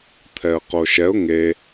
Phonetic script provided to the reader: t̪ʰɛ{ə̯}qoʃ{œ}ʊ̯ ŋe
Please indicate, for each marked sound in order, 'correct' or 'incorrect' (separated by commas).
correct, incorrect